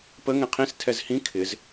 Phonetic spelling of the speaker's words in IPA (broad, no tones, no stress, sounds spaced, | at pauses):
p ə ŋ ɛ̃ qʰ ĩ s tʰ ɛ z h ĩ kʰ ɪ z